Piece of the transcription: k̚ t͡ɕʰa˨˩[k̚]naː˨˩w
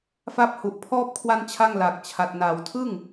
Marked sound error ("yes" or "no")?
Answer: yes